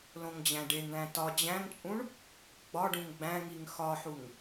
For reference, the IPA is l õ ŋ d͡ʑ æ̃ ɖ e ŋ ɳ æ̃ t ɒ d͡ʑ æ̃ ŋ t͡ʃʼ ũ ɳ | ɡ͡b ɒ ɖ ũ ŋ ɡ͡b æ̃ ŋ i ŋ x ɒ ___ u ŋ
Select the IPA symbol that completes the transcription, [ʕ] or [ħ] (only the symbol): ħ